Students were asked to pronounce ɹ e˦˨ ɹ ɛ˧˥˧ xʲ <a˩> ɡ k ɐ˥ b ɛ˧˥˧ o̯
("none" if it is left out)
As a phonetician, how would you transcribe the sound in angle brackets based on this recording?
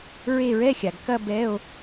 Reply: a˩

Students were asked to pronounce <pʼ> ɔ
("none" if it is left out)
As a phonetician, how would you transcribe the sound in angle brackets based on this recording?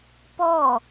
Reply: p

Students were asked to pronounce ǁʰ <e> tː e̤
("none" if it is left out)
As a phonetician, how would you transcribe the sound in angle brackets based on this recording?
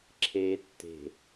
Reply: e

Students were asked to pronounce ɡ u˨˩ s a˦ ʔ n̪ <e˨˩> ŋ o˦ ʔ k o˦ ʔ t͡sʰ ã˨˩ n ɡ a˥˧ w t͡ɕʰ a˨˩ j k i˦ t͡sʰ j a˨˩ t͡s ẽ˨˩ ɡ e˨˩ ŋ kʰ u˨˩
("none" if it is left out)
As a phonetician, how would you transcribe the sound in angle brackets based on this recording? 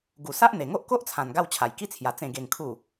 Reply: e˨˩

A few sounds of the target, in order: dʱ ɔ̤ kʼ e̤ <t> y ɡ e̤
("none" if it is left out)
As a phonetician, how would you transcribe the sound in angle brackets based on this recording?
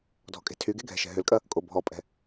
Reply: tʰ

